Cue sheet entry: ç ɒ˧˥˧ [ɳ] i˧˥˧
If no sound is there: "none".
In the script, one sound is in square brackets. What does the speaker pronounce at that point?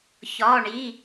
ɳ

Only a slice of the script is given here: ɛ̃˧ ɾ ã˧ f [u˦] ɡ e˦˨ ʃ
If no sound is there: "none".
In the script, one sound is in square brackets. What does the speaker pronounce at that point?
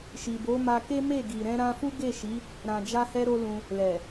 u˦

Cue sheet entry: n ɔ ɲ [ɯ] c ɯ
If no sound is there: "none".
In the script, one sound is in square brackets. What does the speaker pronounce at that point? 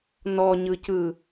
ɯ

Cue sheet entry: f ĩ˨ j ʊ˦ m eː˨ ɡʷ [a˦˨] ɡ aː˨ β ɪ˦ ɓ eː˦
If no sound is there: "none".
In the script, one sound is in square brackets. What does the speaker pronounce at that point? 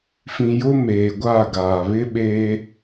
a˦˨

